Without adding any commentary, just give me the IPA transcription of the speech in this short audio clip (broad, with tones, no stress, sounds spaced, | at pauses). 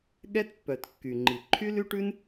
ɠ ɛ˦ t pː œ˨ t kː y˨ ŋ͡ǃ i˨ ǃʰ y˦ l y˦ ʈ ʉ˦ n